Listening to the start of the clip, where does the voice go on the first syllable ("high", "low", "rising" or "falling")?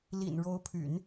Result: low